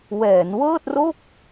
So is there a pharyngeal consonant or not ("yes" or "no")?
no